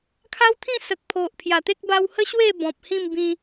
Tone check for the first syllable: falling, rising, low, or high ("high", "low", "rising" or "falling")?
high